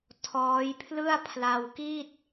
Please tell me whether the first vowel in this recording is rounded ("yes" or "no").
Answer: yes